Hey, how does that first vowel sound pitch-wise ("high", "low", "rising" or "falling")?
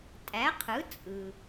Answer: rising